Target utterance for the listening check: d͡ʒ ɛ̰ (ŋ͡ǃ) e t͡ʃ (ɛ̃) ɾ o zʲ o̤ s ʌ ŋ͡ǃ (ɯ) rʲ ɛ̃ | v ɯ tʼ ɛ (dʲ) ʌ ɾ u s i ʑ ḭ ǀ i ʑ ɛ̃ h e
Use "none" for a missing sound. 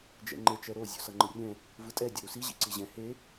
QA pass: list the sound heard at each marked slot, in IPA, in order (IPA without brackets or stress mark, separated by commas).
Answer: ŋ͡ǃ, ɛ, ɯ, dʲ